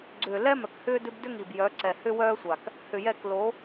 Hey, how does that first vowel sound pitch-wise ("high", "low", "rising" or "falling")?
low